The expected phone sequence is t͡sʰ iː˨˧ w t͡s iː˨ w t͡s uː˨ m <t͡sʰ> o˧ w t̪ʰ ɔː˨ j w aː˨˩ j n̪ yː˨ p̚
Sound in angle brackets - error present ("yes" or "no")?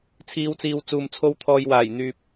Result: no